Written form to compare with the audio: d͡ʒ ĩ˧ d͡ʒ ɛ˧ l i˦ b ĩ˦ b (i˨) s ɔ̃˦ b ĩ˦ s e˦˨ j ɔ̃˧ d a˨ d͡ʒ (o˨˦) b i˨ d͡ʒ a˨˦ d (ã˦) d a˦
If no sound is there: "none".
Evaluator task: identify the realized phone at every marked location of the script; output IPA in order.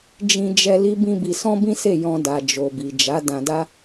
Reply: i˧, o˨, ã˧

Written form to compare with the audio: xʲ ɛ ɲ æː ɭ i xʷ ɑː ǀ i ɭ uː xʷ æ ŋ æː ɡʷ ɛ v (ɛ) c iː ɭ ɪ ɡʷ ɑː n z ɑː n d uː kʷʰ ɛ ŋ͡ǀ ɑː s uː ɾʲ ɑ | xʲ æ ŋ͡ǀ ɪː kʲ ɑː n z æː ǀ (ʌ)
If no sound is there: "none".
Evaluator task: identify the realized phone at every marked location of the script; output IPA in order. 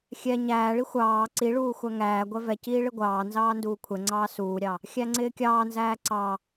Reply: ɛ, ɑ

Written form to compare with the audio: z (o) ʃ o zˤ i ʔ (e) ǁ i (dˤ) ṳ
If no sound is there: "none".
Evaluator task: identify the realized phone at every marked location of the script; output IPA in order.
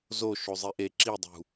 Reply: o, e, dˤ

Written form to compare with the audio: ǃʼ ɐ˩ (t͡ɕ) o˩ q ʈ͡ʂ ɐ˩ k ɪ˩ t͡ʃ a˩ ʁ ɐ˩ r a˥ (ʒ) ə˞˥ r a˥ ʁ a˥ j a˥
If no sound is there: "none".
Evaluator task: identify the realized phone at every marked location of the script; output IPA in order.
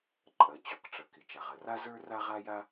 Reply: t͡ɕ, z

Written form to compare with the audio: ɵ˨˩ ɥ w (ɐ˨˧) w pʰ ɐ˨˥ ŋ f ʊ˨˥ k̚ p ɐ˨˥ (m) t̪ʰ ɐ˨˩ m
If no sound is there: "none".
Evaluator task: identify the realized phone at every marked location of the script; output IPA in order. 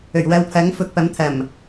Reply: ɐ˨˧, m

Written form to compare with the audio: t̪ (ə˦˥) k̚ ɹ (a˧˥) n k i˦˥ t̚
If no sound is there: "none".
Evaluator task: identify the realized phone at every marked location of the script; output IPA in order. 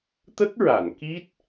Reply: ə˦˥, a˨˩˨

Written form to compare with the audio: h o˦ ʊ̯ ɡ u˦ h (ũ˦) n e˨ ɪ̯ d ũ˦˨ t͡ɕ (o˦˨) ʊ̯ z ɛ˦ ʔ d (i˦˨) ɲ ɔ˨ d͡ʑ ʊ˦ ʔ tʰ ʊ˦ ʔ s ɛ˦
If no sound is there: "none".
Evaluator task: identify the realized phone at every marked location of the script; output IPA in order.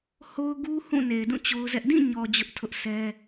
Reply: ũ˦˨, o˦, ĩ˦˨

